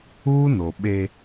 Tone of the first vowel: high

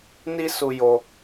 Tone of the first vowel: high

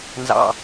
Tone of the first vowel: low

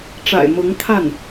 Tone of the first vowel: low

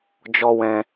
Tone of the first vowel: high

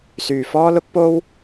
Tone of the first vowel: low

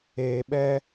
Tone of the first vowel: low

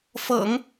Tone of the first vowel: low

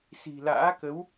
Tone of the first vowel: low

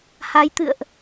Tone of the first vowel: rising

